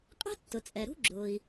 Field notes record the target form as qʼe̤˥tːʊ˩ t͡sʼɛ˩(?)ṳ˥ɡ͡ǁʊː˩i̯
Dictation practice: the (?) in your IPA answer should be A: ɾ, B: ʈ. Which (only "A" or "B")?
A